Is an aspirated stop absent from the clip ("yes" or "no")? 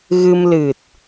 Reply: yes